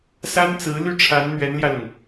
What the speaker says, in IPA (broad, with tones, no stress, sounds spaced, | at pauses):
s a˥ n t͡s ɹ̩˧˥ l y˥˩ ʈ͡ʂʰ a˧˥ n n̪ ɥ ɛ˧˥ n l j ä˧ l ʊ˩ ŋ